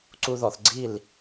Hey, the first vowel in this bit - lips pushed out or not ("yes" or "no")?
yes